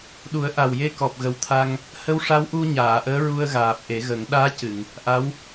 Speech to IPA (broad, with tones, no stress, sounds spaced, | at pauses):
ɗ u˨˩˦ ə̯ ʔ a˨˩ w j e˧ k ɔ˨˩ p̚ ɣ ə˨˩ w t̪ʰ a˧ ŋ | h ə˧˥ w ʂ a˧˥ w ʔ u˧ ɲ aː˨˩˨ ʔ əː˧˥ ɹ u˧ ə̯ ɣ aː˨˩ p̚ ʔ e˨˩˦ ɣ ə˨˩˦ ŋ ɗ aː˧˥ c ɨ˨˩˨ ŋ | ʔ a˧˥ w